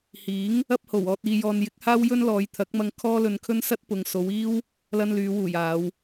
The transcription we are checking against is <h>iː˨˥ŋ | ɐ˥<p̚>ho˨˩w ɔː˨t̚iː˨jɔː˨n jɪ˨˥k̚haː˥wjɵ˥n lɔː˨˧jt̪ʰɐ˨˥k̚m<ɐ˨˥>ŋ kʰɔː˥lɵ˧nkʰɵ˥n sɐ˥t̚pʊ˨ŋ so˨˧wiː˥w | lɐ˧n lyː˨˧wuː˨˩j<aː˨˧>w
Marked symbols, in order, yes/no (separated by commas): yes, yes, no, yes